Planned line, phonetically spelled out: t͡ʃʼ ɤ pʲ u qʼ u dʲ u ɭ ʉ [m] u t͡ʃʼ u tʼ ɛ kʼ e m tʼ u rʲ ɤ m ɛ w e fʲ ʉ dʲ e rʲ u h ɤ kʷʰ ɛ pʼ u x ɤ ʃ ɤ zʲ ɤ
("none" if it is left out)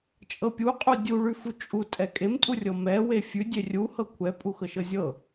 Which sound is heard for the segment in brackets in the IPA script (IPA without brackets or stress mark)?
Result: f